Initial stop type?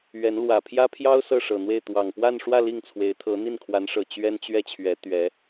aspirated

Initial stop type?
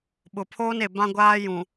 implosive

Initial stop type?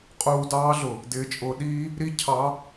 ejective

